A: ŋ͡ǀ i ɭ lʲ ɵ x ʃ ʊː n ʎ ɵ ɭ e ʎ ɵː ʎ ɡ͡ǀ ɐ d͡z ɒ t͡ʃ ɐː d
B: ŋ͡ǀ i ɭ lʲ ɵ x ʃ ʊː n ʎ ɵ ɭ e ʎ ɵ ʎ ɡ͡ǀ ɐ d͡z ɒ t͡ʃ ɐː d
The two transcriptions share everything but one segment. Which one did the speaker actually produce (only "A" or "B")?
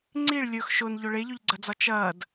B